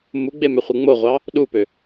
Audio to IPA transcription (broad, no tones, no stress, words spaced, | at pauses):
muɡ͡bemøχʷɯ ŋ͡moʁʷɑ | ɗupø